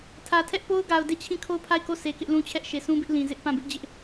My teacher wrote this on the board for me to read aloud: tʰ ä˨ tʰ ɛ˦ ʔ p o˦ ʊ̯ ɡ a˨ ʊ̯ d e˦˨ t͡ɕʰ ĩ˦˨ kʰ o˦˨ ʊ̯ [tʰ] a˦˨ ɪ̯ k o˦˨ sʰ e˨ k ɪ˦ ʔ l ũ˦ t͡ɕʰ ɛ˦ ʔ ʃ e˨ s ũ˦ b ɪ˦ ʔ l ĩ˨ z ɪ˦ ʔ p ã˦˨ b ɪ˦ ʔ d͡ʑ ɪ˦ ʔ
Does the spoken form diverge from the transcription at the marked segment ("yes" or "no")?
yes